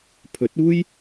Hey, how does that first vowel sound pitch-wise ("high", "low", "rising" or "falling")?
rising